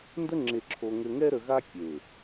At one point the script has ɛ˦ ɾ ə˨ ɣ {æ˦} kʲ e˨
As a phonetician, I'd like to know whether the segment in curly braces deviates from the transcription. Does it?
yes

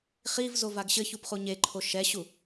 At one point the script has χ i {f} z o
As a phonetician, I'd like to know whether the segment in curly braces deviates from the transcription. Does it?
yes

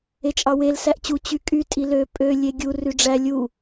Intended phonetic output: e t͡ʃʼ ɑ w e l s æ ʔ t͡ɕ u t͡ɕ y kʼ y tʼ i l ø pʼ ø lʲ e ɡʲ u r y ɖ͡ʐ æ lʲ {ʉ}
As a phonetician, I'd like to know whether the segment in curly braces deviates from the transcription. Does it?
yes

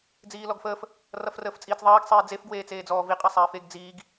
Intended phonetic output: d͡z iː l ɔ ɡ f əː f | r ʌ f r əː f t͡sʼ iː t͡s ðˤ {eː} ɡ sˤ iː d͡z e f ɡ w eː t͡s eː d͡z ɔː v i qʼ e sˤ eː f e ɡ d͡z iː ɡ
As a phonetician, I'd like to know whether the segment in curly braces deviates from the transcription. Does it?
no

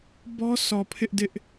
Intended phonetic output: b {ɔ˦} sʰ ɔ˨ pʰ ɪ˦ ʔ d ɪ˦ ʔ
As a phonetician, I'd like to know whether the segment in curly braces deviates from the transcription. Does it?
no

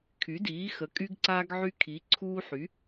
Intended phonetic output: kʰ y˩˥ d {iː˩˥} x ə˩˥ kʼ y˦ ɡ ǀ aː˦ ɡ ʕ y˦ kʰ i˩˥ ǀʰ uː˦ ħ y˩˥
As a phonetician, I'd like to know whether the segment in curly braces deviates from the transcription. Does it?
no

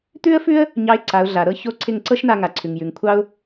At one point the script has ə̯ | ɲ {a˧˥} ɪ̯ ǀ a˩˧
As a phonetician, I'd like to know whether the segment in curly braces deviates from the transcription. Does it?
yes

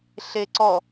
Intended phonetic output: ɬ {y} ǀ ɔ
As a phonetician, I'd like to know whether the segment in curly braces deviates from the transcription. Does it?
yes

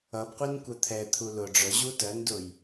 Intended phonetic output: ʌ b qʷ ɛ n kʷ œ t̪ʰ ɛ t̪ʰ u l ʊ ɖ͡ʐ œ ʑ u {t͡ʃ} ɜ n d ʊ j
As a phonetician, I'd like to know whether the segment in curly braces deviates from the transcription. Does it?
yes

